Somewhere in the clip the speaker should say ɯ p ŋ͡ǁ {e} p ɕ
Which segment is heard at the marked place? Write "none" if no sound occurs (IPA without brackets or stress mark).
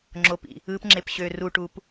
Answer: e